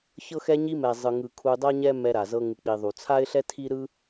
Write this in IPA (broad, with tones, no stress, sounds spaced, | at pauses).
ç ɤ˧ x ɛ˧ ɲ i˧ m ɛ˩ zˤ ɯ˩ ŋ ɯ˩ kʰ u˧ dˤ ɤ˥ ɲ ɛ˥ m ɛ˧ ɾ a˩ z ɤ˧ ŋ ɯ˩ k͡p i˩ ðˤ u˩ t͡sʰ a˥ ɪ̯ ɬ ɛ˥ tʰ i˥ ɾ ɯ˥